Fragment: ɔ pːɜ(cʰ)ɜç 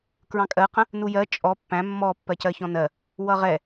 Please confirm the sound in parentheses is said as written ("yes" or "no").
no